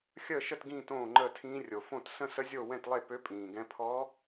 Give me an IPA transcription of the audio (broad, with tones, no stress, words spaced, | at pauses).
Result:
xʲəː˥˩ʃə˥˩t ɡĩː˥˧tõː˥˩ŋ͡ǃəː˥˩tʰĩː˧˥ rʲo˨˩ fõ˥˩tsə̃˥˧sə˧˥zʲo˥˩ wɛ̃˥˩tlˠe˥˩pø˧˥ pʼĩː˨˩ɡɛ̃˧˥ pʰɔ˧˥